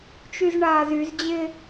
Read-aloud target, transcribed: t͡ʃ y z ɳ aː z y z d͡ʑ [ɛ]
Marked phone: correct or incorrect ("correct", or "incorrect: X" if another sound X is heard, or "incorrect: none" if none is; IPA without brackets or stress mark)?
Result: incorrect: ɪ